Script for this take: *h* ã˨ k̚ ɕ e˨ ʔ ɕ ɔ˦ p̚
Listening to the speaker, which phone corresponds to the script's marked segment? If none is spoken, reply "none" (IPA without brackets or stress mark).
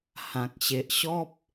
h